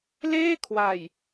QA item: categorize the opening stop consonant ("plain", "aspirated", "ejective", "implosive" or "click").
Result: aspirated